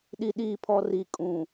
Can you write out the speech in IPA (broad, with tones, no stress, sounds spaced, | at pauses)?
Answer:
ɗ i˨ ɗ iː˨ pʰ ɔ˨ r i˨ kʼ ũ˨